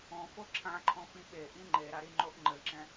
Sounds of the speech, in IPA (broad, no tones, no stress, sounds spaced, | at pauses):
õ f o ǁʰ ã ǃʰ õ f ĩ ɓ e ʔ ĩ ŋ͡ǃ e ɾ a ɾ i ŋ͡ǃ o ʔ ŋ͡ǃ ɘ ǁ ɛ̃